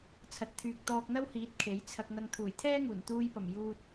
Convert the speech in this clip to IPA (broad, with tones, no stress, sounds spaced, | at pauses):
t͡sʰ ɐ˨ t̚ t̪ʰ yː˨ k̚ t̪ ɔː˧ k̚ n̪ ɐ˥ w h iː˨˥ t̚ kʰ e˨˥ j t͡sʰ ɐ˧ k̚ n̪ ɐ˧ ŋ t̪ʰ uː˨˩ j t̪ʰ ɛː˥ ŋ uː˨˩ n t̪ uː˧ j p ɐ˨˩ m j uː˧ t̚